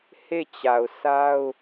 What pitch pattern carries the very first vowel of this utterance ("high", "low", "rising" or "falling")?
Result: falling